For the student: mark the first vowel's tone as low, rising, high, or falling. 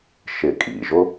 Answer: low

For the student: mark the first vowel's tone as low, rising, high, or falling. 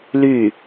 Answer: falling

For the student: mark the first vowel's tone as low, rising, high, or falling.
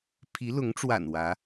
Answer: rising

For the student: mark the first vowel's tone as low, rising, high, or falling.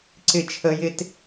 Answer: falling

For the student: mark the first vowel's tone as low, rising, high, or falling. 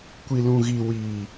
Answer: low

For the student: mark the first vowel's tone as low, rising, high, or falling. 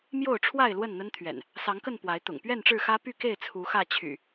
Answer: falling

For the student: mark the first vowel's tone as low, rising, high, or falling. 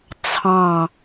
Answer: falling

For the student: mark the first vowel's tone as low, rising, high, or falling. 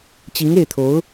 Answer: rising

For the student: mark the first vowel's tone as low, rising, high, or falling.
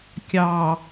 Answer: low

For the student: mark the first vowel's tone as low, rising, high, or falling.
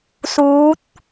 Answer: rising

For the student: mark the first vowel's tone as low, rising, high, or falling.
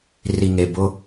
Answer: low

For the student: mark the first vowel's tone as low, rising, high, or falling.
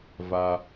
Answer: high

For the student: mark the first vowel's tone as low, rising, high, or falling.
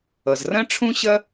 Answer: low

